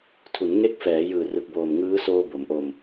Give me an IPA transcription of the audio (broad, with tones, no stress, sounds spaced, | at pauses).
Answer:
tʰ u˩˦ n ŋ e˦˥ k̚ f ɛː˩˦ j ɯː˨˩ r ɯ˨˩ k̚ b oː˨˩ m ŋ ɯː˦˥ s oː˧ b o˩˦ m ʔ o˧ m